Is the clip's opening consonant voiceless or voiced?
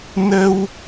voiced